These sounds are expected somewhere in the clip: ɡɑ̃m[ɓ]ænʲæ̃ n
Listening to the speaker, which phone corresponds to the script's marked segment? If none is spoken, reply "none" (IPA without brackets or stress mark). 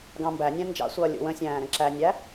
b